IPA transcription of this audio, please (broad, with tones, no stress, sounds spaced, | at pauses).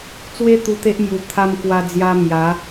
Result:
t͡s w e˧ t̪ u˧ t̪ e˦ ʔ m j u˨˩ t̪ʰ a˧ m k w a˧ d͡z j a˧ m j a˨˦